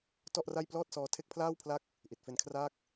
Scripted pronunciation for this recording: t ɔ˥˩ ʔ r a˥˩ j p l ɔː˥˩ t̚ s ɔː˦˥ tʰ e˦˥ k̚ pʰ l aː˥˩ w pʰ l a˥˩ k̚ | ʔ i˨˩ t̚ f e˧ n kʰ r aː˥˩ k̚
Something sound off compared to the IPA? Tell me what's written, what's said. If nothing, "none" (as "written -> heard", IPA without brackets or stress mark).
none